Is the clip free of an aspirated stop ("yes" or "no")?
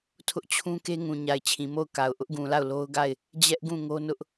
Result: no